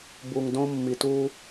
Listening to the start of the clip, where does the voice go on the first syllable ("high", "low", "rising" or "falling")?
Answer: low